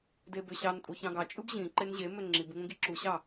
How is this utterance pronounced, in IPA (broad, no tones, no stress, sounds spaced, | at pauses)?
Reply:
d e b ø ɕ ɑ n tʼ u ç ɑ̃ ɡ ɑ t͡ʃʼ ɯ b ʑ ĩ ǃ e n ʑ e m ø ŋ͡ǁ i b ŋ ũ ɡ i ǁ u ɕ ɑ